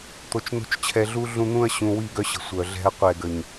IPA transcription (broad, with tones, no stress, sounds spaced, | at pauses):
t̪ o˨ t͡ʃ n̪ o̤˦ t͡ʃ t͡ɕʰ ɛ˨ ɮ u˦ ɮ ũ˦ n̪ ũ˦ ɐ̯ ɕ ũ˨ w i˦˨ ɡ œ˦ ɕ ə̤˨ sʷ œ˨ ɮ ɛ̤˦ ɐ̯ qʷ ɛ˨ ɡ ə˨ ɲ